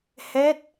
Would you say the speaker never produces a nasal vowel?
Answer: yes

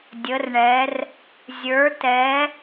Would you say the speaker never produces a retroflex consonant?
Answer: no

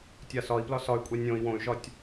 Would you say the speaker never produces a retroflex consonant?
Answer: yes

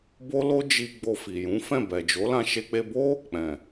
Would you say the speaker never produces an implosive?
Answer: yes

